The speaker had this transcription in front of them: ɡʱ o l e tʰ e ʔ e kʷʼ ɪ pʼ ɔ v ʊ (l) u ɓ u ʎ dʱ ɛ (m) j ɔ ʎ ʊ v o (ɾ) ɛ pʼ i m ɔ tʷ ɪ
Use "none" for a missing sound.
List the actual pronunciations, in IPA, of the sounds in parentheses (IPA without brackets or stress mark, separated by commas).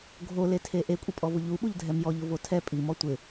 ʎ, m, tʰ